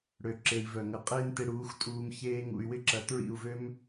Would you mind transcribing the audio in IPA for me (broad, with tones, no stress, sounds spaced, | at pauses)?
ɽ ø˨ ǁ e˨ i̯ v œ˨ ŋ ɐ˧ qʼ eː˦ n t e˧ ɽ uː˨˦ x tʼ uː˧ m ç eː˦ ŋ ṵ˧ y̯ w ɪ˦ ǁ ɐ˧ t ɹ ḭ˦˨ u̯ v ø˦ m